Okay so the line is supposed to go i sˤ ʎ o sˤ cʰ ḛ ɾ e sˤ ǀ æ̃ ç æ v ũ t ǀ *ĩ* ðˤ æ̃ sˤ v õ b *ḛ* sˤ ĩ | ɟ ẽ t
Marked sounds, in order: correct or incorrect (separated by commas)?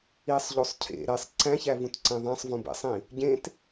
incorrect, correct